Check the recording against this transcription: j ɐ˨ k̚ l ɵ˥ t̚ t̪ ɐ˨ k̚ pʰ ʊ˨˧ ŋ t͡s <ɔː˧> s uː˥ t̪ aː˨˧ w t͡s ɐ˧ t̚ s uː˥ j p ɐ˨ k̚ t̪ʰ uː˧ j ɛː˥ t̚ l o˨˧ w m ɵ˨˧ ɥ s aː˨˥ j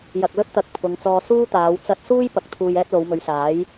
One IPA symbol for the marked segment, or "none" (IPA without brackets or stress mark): ɔː˧